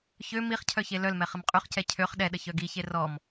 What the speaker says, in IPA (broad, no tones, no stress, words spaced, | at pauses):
çø miχ cʰœçelœlmɛ χəmqʼyχcɛ cʰøχ ɗɛɗə çœɡiçe rɔm